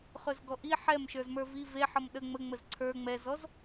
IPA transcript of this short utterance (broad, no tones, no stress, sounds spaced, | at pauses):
χ ɵ z ɡ ɔ ʔ i ħ ɛ m ʃ ə˞ z m ə˞ v i v e ħ ʌ m ɗ ə ŋ͡m ə ŋ͡m ə z ǀʰ ə˞ ŋ͡m ɛ z ɔ z